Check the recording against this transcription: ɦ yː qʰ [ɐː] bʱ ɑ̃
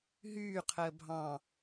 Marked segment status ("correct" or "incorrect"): incorrect